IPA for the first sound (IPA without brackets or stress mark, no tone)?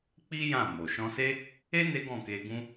k͡p